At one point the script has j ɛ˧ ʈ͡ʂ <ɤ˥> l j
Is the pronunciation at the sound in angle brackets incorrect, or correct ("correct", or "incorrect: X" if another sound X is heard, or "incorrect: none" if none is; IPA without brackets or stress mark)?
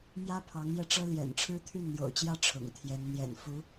correct